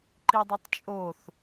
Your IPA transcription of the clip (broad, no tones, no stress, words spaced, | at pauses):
ǃidˤotˤt͡ʃʼoθ